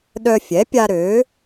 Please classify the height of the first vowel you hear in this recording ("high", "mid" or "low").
mid